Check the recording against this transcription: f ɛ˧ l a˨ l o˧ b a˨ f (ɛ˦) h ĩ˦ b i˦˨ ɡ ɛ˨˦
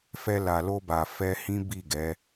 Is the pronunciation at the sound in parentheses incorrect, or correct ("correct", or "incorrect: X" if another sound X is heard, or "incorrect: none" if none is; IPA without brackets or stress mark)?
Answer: incorrect: ɛ˧